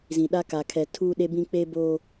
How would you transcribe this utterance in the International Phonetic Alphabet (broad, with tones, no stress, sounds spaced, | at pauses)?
z ĩ˨ ɗ a˦ k a˨ kʰ ɛ˨ tʰ uː˦ ɗ e˦ b ĩ˦ k͡p e˦ b oː˦